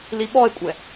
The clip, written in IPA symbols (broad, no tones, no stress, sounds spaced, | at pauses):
l i ɓ ɔ e̯ kʷʼ ɛ